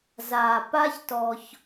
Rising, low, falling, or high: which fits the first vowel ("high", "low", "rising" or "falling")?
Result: low